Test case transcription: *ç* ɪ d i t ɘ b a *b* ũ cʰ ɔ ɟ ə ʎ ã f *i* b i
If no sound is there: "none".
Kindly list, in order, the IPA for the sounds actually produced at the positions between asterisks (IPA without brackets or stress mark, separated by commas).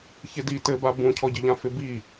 ç, b, ɪ